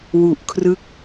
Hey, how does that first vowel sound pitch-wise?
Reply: low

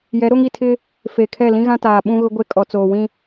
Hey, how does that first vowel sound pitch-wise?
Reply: rising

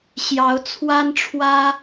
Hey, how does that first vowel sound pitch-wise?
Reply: rising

